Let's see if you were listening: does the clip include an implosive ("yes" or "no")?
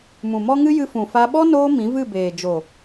yes